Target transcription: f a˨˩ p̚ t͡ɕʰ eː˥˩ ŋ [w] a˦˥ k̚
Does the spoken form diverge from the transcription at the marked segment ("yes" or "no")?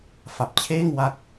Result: no